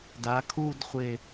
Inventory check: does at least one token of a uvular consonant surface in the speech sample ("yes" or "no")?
yes